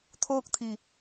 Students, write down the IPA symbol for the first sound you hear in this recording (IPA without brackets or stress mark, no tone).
t̪ʰ